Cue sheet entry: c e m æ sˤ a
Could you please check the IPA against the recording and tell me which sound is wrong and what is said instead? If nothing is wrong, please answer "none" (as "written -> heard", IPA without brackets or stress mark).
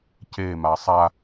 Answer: æ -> a